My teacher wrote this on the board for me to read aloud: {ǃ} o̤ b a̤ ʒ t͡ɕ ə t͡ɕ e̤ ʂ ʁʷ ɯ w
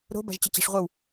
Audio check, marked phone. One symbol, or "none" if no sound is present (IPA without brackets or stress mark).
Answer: ɾ